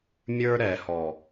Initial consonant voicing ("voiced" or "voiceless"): voiced